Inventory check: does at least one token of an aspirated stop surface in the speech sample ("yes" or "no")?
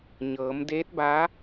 no